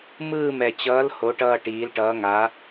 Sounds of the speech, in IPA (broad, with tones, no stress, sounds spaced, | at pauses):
m ɯː˦˨ m ɛ˨˩ t͡ɕ ʌː˨˦ l h o˨˦ ʈ ʌː˦˨ ʈ iː˨˦ l ʈ ʌː˨˦ ŋ a˨˦